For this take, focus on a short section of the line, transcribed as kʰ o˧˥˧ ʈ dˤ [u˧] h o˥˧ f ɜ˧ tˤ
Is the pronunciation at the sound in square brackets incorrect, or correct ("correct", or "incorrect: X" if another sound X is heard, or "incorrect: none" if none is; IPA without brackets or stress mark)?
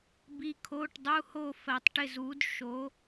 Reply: incorrect: u˧˥˧